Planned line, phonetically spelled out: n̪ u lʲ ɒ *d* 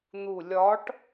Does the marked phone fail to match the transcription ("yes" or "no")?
yes